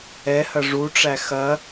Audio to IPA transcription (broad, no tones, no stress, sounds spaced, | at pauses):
ɛ h ɐ ʐ u ʈ͡ʂ æ x ɐ